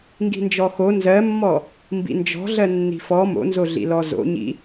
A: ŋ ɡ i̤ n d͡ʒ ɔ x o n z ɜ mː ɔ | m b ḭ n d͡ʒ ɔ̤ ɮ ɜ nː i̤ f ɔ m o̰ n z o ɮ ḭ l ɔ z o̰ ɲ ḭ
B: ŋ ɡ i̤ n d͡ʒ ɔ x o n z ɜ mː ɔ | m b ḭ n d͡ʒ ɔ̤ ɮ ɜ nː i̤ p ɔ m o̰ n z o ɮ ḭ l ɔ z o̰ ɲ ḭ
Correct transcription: A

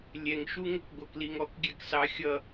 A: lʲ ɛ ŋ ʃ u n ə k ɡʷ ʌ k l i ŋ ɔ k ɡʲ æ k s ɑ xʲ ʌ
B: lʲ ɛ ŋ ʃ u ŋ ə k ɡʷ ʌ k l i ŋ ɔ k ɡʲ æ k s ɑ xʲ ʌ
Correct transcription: B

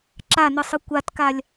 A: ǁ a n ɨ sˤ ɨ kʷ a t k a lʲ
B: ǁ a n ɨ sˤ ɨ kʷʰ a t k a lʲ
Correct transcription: A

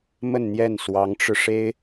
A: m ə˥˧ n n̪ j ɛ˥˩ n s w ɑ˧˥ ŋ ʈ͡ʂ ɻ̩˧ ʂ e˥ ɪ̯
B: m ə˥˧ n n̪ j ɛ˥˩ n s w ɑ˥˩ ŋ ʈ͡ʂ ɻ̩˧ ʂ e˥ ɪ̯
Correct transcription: A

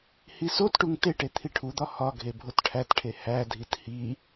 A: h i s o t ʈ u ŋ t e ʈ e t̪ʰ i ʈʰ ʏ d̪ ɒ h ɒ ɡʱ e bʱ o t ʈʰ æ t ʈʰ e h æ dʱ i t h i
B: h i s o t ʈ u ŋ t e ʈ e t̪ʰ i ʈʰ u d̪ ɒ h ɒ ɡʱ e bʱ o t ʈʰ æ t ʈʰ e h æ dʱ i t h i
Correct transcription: B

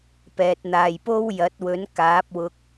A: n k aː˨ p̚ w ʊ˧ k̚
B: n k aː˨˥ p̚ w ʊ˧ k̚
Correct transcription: B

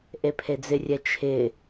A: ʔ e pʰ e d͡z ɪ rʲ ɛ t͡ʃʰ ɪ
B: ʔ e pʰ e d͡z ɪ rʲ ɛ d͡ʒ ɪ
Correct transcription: A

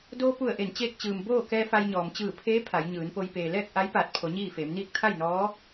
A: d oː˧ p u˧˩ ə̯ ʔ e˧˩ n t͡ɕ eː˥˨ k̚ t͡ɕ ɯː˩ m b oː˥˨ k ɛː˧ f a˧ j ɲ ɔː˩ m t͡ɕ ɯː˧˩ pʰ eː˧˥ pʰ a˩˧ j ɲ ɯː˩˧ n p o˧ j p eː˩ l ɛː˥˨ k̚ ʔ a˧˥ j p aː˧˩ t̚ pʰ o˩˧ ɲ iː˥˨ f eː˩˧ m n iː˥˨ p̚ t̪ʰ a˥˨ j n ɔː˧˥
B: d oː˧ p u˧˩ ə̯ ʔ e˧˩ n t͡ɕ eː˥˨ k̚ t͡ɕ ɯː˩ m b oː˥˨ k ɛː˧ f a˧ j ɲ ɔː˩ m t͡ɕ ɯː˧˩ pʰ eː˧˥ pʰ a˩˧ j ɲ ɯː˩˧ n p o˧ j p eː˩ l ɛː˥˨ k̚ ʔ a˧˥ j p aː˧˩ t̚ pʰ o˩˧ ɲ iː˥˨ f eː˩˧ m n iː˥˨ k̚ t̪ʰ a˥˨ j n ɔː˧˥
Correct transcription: B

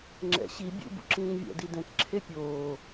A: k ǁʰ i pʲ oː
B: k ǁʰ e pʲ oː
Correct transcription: B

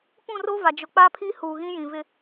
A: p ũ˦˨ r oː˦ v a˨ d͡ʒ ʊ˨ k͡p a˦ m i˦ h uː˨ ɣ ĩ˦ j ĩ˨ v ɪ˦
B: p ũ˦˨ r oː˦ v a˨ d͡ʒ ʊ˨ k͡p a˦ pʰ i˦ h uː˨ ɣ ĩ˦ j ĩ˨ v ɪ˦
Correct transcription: B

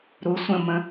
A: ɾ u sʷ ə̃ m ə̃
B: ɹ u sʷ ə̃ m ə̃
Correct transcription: A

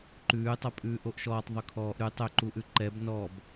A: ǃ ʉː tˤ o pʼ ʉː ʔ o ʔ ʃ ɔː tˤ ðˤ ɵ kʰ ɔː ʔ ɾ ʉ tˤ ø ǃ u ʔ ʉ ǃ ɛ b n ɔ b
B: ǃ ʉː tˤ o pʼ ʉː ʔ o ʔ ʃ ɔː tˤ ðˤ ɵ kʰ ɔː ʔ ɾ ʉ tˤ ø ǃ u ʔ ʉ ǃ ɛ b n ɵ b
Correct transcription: A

